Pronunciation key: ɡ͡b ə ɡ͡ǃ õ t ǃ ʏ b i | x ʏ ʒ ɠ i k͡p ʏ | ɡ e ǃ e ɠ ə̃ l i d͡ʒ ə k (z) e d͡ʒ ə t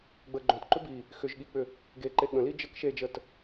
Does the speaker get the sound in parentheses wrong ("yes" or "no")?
yes